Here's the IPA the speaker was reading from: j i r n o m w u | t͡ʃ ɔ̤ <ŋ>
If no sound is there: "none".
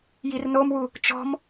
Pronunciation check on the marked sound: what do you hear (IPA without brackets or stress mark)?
m